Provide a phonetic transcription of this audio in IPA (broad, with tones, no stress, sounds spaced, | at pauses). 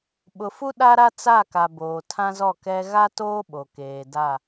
ɓ ʊ˨ f u˦ ɗ a˦ ɾ a˦ t͡s a˦˨ k a˨ b oː˨ tʰ ã˦ z ɔ˦˨ k ɛ˦ ɣ a˦ t oː˦ ɓ o˨ k eː˨ d a˦˨